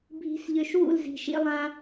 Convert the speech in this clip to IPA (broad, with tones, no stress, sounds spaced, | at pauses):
bʱ i̤˧ s ʎ ø˧ ʃ w ṵ˦˨ l z i̤˨ ʃ ḭ˧ lˠ ã˧